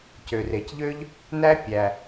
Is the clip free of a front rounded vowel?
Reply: no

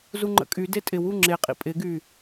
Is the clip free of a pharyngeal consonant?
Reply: yes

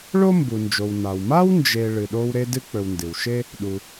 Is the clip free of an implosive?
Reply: no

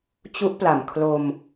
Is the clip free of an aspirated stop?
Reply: no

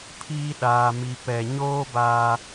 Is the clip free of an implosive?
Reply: no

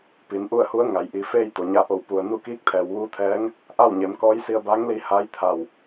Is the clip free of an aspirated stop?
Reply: no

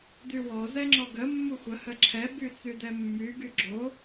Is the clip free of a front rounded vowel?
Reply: no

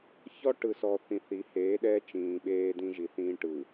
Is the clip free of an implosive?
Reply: no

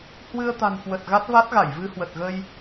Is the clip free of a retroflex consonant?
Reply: yes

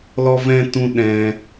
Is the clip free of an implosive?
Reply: no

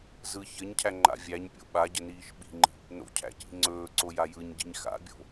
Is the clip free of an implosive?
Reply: no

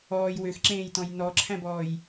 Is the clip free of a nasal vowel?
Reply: no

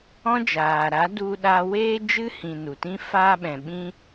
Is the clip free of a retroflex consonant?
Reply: yes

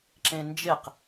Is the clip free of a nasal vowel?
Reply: no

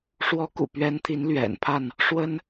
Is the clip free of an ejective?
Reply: yes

